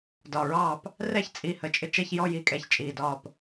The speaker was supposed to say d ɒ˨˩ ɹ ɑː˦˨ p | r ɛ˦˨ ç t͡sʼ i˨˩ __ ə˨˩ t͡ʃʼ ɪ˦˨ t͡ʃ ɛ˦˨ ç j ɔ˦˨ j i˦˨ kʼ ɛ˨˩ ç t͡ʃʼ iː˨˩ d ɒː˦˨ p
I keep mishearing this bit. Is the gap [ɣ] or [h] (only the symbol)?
h